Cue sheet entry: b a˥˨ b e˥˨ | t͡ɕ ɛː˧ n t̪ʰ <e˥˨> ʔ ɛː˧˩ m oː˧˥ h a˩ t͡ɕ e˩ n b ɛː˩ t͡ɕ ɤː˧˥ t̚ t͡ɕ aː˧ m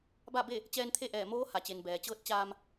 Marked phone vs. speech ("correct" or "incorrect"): correct